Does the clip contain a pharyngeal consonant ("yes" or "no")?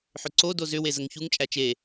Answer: yes